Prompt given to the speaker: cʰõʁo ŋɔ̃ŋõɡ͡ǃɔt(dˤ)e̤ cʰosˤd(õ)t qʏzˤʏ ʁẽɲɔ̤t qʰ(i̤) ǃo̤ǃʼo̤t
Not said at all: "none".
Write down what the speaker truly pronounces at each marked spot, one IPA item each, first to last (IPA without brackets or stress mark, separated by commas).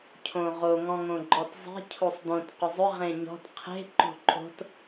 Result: zˤ, õ, e̤